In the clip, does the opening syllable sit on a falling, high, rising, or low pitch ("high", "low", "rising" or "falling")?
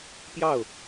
falling